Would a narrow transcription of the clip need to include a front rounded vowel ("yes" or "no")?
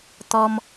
no